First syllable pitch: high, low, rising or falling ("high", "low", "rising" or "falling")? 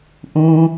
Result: low